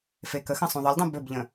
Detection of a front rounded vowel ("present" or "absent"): absent